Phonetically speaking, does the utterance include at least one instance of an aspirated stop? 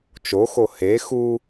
no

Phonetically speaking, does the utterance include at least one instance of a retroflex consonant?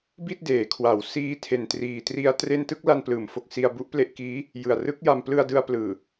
no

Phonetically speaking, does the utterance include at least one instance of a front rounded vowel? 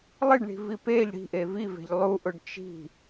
no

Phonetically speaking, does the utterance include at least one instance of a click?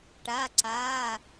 yes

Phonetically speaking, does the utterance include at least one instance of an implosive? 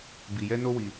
no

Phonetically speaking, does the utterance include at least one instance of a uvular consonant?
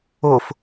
no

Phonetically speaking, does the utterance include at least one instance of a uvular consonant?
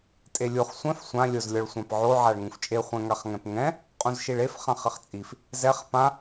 yes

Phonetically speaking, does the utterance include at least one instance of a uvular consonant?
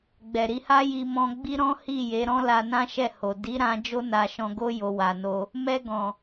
no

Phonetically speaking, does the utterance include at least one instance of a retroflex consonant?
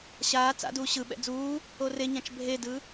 no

